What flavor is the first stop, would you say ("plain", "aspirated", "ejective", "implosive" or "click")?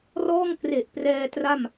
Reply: plain